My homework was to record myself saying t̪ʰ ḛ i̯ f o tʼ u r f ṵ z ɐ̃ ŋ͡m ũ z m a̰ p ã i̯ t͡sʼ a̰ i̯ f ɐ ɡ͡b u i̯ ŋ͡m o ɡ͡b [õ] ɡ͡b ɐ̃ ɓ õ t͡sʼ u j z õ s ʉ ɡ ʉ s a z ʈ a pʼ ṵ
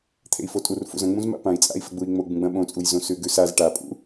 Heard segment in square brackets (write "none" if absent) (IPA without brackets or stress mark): ũ